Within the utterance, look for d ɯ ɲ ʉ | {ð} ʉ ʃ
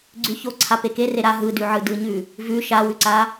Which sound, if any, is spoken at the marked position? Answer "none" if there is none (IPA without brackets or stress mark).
v